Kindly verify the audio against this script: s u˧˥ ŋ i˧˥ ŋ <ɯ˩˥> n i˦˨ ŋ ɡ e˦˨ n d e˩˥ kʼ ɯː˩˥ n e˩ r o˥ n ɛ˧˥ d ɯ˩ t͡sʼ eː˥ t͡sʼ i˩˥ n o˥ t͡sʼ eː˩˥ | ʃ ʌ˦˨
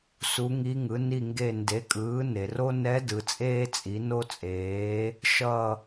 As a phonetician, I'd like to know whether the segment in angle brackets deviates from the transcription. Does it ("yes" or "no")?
no